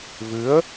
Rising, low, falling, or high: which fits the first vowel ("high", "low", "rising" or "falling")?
rising